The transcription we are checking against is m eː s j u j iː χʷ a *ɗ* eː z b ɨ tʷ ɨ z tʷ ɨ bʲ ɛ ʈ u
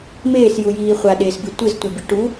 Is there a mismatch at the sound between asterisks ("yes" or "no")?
no